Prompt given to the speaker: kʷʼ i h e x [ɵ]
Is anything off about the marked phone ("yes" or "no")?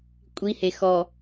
yes